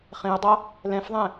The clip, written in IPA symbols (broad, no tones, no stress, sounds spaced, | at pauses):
χ ẽ ʊ̯ dˤ ʌ | l ɛ̃ f ðˤ ɛ̃